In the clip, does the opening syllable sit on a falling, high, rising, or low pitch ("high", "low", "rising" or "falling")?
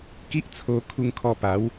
high